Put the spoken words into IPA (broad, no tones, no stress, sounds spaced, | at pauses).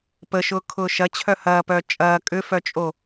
p ə ʃ ʊː kʰ ʊː ʃ ɐ t͡ɕʰ œ h ɐː p œ t͡ʃʼ ɐː kʼ ʏ f œ t͡ʃʼ o